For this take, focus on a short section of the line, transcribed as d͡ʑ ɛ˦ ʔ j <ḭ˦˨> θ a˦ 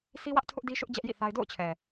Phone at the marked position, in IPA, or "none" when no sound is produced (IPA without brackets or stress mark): ḭ˦˨